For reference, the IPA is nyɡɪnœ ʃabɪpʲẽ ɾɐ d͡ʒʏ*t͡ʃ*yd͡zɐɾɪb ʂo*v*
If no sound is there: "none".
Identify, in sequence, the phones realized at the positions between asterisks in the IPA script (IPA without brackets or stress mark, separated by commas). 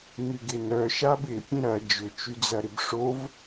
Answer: t͡ʃ, v